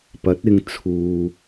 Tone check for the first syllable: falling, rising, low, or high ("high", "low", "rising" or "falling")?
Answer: rising